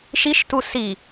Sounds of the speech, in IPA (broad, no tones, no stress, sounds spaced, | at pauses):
ʃ i ʃ t u s i